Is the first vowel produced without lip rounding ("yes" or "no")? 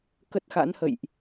yes